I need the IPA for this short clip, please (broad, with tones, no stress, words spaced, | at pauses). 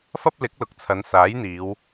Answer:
fɐ˥p̚lɪ˨˥k̚lʊ˨˥k̚t͡sʰɐ˨˧n saː˨˥jn̪iː˨˧w